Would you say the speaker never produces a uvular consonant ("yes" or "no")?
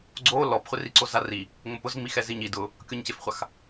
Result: no